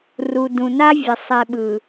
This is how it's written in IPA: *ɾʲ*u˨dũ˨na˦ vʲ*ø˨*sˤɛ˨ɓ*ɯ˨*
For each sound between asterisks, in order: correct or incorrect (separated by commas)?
incorrect, incorrect, correct